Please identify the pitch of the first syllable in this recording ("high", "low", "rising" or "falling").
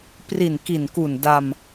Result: low